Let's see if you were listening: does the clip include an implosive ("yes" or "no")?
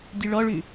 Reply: no